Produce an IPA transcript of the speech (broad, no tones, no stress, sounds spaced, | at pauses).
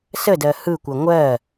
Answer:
s ə d ɜ h ɯ kʷ ɜ ŋʷ ɜ